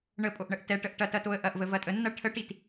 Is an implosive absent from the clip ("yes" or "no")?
yes